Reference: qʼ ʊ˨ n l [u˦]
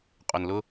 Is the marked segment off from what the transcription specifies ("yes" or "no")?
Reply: yes